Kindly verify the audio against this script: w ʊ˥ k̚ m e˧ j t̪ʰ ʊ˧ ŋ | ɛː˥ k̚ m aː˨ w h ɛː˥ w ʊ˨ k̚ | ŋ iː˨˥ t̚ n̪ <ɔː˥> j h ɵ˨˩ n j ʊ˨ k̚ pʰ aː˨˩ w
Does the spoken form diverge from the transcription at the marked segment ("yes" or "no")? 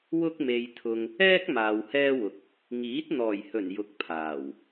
yes